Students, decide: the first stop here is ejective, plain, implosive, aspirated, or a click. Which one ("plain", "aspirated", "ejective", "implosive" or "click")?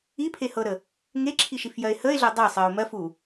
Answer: aspirated